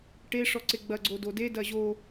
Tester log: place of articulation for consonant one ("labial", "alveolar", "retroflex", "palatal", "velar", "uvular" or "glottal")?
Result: retroflex